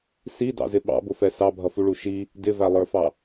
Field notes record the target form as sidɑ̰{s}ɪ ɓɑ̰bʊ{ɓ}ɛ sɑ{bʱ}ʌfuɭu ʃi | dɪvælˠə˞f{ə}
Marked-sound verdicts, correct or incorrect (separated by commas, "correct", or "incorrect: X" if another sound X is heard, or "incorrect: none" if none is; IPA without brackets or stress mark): incorrect: z, incorrect: f, correct, incorrect: ɑ